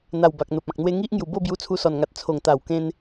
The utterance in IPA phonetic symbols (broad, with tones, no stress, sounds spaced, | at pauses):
n̪ a˨˩ w b a˨ k̚ n̪ o˨ p̚ ã˨ k̚ n̪ w e˧ ŋ i˦ ʔ ŋ j u˧ b o˥˧ b j u˧ t͡sʰ u˧ s ɔ˨˩ n ŋ a˨ t̚ t͡sʰ o˨˩ ŋ t̪ a˨˩ w k ẽ˧ n